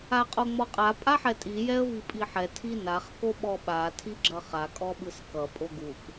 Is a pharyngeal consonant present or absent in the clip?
present